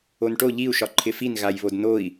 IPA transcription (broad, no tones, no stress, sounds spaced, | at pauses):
o n ʈ o ʎ i u̯ ʃ ɒ ǃʰ ɪ f i n ɣ a j β o d n o i̯